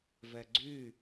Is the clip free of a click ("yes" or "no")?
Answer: no